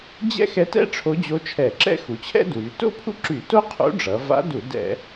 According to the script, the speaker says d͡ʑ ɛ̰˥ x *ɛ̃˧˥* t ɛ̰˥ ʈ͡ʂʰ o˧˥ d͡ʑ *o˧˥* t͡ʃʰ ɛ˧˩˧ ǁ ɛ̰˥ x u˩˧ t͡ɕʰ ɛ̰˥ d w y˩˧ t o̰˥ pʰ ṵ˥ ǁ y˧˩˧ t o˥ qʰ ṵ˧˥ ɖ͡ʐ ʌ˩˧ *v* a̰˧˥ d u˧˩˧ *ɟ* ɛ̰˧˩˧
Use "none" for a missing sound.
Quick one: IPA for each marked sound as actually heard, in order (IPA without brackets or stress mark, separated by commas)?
ɛ˧˥, o˧˥, v, d